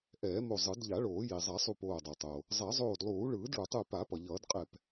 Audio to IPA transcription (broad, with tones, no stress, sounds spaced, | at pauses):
ʔ ɛː˨˩˦ m o˧˩ zˤ ɯ˨˩˦ d ʎ a˨˩˦ ɭ oː˨˩˦ j i˩ zˤ a˨˩˦ sˤ u˧˩ p oː˧˩ dˤ a˩ tˤ o˩ | zˤ ɛ˨˩˦ zˤ oː˧˩ d lˠ uː˨˩˦ ɭ ɯː˨˩˦ d ɭ u˩ tˤ ɯ˧˩ p a˨˩˦ p ʌ˩ ʎ ʌː˨˩˦ d qʼ ɛ˧˩ p